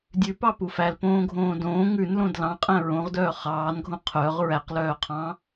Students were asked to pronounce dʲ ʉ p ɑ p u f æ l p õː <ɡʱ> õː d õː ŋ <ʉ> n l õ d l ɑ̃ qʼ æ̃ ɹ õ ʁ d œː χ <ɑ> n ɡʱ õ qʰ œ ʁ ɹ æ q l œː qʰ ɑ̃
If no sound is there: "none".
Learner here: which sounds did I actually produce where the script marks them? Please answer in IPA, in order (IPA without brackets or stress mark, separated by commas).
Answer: ɡʱ, ʉ, ɑː